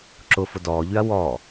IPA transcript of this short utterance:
ǁ ʊ f ʊ d ɔː ʎ y ɐ̯ w ɔ

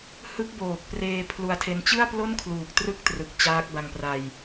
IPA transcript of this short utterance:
h ɯ˦˥ k̚ b oː˨˩ k̚ p r eː˧ pʰ l u˧ a̯ tʰ e˧ n t͡ɕ ɯ˥˩ a̯ p l o˥˩ n kʰ l uː˨˩ k̚ t r ɯ˥˩ k̚ t r ɯ˨˩ k̚ t͡ɕ aː˦˥ k̚ b a˧ ŋ p r a˧ j

